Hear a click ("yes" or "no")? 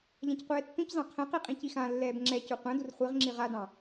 yes